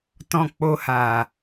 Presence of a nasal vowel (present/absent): present